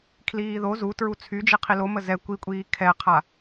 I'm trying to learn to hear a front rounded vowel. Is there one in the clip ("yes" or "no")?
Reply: yes